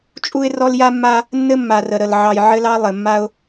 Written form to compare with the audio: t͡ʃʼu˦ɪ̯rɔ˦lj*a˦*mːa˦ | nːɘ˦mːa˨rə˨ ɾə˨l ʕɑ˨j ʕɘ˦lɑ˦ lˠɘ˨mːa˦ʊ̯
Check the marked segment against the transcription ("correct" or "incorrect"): correct